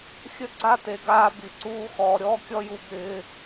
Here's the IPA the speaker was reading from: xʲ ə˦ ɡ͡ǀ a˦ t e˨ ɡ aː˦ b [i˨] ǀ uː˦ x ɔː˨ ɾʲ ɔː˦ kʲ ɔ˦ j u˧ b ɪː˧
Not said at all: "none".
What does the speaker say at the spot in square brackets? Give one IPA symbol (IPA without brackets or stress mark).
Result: i˨